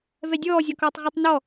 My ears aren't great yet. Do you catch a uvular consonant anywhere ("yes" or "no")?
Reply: yes